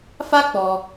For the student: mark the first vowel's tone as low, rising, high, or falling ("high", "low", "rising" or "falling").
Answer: high